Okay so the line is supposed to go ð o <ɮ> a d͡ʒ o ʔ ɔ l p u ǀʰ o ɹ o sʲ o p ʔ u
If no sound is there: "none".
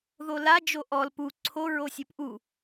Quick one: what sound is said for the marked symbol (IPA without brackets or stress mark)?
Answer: l